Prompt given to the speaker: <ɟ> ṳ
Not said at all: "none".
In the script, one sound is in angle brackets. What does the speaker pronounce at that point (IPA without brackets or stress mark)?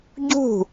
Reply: ɟ